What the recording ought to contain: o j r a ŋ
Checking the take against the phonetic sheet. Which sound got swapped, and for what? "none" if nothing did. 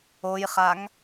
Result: r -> χ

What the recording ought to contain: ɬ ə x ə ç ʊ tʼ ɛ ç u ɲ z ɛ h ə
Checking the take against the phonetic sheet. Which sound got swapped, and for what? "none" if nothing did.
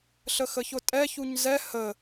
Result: none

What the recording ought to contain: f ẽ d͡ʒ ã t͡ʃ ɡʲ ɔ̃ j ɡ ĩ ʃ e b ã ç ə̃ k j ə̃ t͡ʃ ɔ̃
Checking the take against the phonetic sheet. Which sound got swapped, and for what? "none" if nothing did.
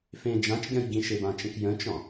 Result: ç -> t͡ʃ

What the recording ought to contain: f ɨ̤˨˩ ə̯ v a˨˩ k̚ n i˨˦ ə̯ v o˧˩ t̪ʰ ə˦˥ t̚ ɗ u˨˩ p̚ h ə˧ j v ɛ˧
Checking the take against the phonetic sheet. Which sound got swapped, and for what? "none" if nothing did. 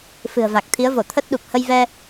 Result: n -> t̪ʰ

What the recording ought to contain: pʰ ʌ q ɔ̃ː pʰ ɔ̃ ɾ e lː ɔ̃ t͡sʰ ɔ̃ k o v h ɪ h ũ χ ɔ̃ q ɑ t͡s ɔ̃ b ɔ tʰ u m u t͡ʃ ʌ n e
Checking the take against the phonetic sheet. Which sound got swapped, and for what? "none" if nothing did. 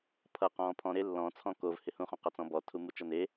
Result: none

